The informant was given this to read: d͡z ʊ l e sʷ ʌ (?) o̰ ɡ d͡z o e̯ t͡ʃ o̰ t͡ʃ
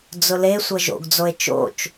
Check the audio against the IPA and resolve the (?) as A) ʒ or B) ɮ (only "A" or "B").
A